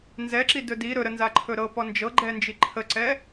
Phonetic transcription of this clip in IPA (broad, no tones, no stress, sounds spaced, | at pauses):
n z ɛ ǁ i d ɵ d i ɾ ɵ ɾ ə n z a ǃʰ ɵ ɾ ɤ p ɔ n d͡ʒ ɤ ɡ͡ǃ ɛ n d͡ʒ i ǃʰ ə ǀ ɛ